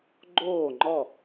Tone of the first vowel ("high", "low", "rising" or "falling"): falling